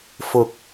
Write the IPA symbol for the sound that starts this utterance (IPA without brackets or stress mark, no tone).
f